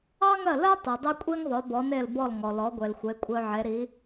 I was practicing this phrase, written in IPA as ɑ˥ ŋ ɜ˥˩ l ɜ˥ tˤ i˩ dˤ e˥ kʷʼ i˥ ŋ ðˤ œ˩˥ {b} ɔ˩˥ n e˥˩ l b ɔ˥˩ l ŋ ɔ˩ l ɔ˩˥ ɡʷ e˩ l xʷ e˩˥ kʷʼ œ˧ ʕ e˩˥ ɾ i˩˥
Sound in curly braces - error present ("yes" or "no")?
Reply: no